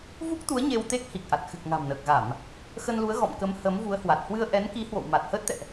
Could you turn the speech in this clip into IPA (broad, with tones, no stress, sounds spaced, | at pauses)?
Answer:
v u˦˥ k̚ t̪ u˨˦ ə̯ ɲ e˧ w t̪ e˦˥ k̚ h i˨˩ k̚ ʔ a˨˩ t̚ x ɨ˨˩ k̚ ŋ a̤˨˩ m n əː˨˩ k̚ ɣ a˧˩˨ m | x ə˧ n l u˨˦ ə̯ ɣ ɔ̰˧˨ m k ə˨˦ m h ə˨˦ m v u˨˦ ə̯ h w a˨˩ t̚ h w ɨ˧ ə̯ ʔ ɛ˨˦ n k i˨˦ h w o̰˧˨ w m a˨˩ t̚ h əː˦˥ t̚ t̪ ɛ̰˧˨ ʔ